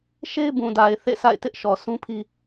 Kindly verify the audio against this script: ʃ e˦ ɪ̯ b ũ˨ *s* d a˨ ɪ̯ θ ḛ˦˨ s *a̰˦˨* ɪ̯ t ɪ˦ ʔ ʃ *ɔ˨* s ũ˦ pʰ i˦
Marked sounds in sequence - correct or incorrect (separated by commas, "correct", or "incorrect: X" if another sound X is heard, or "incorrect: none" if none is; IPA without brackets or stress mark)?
incorrect: none, correct, correct